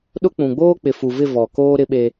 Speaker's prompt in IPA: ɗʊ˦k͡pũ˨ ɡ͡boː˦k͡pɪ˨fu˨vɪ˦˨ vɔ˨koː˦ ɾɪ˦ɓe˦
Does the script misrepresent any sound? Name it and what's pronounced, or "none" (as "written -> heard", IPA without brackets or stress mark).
none